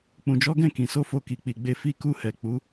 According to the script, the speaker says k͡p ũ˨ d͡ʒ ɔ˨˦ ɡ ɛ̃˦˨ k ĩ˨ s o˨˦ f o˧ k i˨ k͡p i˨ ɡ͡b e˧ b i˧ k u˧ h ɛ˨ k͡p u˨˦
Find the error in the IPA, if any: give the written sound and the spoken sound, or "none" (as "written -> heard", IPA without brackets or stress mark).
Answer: b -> f